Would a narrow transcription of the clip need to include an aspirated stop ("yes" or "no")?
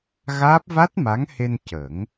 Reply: no